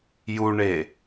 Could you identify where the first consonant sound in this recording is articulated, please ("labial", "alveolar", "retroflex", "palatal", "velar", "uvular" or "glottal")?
palatal